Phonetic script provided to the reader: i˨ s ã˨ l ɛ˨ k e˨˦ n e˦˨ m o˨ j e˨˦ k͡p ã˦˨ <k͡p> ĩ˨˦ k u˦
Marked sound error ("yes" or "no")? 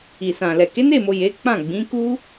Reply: yes